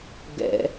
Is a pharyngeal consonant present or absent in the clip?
absent